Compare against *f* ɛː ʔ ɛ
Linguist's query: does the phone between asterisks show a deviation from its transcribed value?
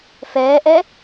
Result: no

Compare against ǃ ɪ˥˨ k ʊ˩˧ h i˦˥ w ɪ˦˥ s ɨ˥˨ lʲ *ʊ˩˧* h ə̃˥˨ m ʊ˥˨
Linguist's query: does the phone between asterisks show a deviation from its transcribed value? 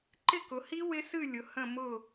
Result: no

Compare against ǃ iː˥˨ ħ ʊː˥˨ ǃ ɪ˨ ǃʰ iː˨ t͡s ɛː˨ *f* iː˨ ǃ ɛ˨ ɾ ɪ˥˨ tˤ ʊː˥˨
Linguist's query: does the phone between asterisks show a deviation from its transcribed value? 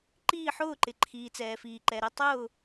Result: no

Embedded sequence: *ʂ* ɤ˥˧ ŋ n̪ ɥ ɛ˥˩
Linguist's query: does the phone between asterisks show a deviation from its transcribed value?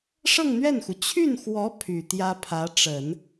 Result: no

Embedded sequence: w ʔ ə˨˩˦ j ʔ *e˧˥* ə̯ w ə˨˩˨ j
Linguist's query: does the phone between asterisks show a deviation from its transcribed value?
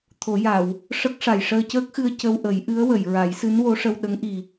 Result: yes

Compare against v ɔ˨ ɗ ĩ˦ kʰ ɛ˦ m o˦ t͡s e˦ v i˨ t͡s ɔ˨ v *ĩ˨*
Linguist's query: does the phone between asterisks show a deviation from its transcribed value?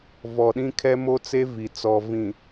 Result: no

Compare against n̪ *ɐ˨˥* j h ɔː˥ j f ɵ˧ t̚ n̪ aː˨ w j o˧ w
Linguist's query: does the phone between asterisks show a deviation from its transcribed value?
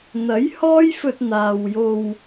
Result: no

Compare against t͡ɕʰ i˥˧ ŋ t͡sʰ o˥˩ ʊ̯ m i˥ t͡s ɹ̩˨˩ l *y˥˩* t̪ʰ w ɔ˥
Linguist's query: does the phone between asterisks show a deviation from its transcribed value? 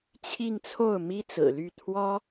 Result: no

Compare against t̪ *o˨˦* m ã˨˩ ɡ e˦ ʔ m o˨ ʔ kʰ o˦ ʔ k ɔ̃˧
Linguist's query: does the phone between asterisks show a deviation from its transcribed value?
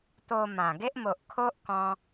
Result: yes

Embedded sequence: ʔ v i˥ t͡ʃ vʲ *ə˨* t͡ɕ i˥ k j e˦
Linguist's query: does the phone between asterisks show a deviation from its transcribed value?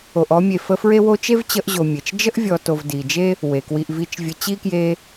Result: yes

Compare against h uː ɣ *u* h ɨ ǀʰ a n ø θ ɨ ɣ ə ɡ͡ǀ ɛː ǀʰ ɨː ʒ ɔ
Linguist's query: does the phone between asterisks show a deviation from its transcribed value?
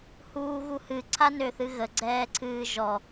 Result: no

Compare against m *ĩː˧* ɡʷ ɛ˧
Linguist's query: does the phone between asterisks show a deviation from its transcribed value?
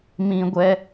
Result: yes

